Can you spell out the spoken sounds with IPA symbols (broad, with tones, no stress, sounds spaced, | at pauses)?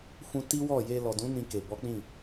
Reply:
f ũ˧ t i˦ w ɔ˦˨ j e˧ l ɔ˨ d ũ˨˦ n ĩ˧ k e˨ b ɔ˨˦ k͡p ĩ˦˨